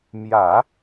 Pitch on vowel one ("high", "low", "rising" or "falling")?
low